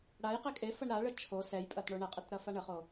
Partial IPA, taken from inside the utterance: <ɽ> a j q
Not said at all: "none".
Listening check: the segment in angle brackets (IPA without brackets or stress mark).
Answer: ɽ